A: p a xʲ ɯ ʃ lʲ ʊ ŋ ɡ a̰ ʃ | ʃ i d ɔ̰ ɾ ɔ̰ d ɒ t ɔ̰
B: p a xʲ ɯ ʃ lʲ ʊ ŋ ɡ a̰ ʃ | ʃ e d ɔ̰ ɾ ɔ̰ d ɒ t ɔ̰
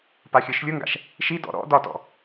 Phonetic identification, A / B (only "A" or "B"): A